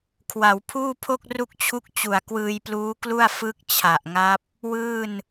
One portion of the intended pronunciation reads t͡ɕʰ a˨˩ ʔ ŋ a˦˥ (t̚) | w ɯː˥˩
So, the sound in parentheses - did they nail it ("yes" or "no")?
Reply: no